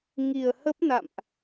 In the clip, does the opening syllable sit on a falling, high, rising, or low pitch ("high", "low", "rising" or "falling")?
low